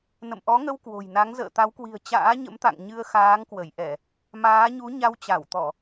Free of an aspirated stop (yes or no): yes